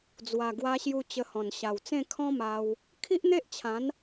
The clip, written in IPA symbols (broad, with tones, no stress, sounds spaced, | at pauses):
d͡z w a˨˩ ɡ w a˧ ɕ j u˧ t͡ɕ ə˧ h ɔ̃˨˩ n ɕ a˨˩ w t͡s ẽ˥˧ kʰ ɔ̃˦ m a˧ w | kʰ i˦ ʔ n̪ e˦ ʔ t͡ɕʰ ã˨˦ n